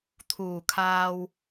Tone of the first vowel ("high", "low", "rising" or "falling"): low